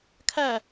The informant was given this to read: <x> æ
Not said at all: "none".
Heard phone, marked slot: kʰ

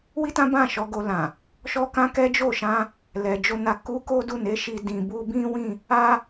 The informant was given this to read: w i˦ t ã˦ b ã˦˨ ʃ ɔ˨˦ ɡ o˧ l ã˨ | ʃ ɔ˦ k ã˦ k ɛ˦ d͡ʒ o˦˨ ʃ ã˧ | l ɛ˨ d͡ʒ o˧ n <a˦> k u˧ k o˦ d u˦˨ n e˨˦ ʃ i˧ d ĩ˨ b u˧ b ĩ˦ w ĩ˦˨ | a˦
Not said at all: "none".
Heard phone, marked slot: a˧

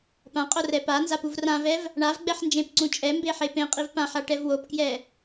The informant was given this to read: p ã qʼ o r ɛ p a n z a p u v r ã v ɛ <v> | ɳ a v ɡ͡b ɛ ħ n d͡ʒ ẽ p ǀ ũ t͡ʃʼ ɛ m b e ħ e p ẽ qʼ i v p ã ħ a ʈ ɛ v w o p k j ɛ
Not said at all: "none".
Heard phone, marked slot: v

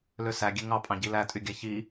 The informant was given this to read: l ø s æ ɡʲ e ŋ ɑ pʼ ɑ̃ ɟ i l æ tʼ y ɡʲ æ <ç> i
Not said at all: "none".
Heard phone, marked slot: ç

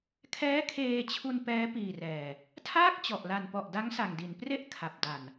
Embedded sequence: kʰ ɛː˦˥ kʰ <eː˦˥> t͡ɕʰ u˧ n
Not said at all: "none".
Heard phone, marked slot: eː˧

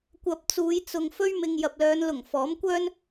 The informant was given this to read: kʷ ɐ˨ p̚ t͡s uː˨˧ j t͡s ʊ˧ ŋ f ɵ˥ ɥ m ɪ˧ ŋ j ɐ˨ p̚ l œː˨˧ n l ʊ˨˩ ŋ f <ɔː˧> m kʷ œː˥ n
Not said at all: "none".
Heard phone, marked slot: ɔː˨˥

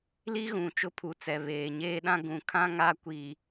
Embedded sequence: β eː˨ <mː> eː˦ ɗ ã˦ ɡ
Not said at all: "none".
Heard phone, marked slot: ɲ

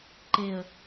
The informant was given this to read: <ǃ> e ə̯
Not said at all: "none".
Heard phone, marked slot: ǃ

